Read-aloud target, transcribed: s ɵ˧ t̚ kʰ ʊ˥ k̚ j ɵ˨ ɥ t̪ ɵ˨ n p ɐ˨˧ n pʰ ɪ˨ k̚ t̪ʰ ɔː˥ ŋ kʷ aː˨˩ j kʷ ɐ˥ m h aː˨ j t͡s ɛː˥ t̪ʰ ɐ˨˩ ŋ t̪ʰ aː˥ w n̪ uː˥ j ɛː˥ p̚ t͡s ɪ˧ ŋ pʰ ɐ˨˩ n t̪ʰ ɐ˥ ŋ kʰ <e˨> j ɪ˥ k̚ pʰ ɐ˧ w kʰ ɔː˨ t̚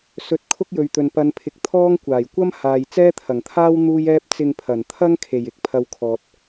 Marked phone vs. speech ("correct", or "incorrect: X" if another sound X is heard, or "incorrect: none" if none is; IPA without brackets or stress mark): incorrect: e˨˩